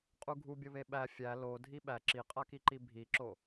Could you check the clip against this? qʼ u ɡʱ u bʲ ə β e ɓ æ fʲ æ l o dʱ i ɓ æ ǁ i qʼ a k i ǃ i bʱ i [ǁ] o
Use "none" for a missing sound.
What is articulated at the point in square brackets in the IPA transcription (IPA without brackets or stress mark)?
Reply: ǁ